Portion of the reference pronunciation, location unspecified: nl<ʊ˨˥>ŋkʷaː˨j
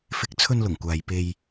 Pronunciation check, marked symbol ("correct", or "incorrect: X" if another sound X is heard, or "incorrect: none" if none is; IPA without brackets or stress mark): incorrect: ʊ˨˩